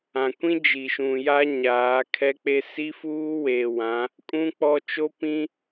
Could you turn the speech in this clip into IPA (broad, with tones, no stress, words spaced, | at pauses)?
ã˨kʷĩ˦ d͡ʒi˨ʃũ˨ja˦ ɲaː˨˦kʰɛ˦k͡pe˦ si˦fuː˦weː˨wã˨˦ | kʼũ˦ k͡pɔ˦ t͡ʃo˦pĩ˦